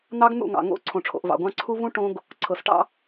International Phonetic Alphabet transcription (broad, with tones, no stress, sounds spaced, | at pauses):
n̪ ɑ˦ ɡ n̪ ṵ˦˨ ŋ ɑ̰˨ ŋ o̰˦˨ ǀʰ õ˨ ʈ͡ʂʰ o̰˨ ʔ v ɑ̰˨ ɡʷ ɑ̃˦ ǀʰ u˦ v ũ˦ ʈ õ˦ ɡ | ǀʰ ɤ˨ s ʈ ɑ̰˦